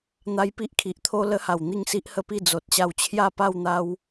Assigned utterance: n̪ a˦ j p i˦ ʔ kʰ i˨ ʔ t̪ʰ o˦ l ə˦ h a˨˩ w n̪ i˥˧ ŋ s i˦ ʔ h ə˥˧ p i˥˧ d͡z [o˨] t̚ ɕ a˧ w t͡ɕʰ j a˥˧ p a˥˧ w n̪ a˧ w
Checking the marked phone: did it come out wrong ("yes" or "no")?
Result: no